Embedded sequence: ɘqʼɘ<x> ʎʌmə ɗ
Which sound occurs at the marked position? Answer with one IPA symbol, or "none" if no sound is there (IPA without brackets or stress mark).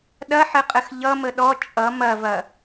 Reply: x